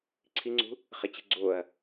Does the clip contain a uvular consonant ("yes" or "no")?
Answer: yes